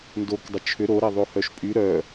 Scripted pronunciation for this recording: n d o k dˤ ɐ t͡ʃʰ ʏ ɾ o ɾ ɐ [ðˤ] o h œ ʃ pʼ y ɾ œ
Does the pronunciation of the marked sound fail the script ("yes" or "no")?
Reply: no